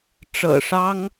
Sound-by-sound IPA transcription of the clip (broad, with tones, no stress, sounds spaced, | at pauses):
ʈ͡ʂ ɤ̰˨˩ ʂ ɑ˥ ŋ